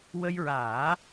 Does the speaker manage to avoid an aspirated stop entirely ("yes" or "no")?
yes